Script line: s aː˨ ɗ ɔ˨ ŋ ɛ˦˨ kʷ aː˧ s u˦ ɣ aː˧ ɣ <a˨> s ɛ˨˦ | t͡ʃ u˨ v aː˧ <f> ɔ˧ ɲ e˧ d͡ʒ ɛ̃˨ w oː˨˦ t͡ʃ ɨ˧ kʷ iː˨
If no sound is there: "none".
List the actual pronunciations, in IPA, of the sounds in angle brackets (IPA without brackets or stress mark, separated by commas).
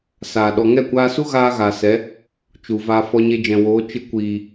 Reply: a˨, f